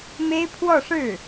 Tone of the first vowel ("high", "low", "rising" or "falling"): high